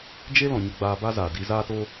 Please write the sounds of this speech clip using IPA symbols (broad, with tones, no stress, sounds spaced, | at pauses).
d͡ʒ e˦ l ɔ̃˨ ɲ ə˧ ɡ͡b aː˧ b a˦ z aː˨ d i˧ z aː˦ t o˦